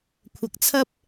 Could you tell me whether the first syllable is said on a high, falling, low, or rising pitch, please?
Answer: low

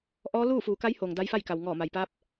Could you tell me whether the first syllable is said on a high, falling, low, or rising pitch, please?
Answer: rising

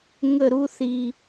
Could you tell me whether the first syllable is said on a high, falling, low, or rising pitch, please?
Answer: falling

